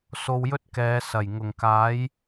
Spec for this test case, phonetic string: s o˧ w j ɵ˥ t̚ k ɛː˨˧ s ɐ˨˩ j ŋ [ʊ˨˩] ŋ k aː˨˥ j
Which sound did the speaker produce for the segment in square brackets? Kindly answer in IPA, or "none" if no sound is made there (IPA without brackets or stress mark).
ʊ˨˩